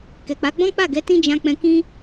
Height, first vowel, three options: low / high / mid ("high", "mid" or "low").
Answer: mid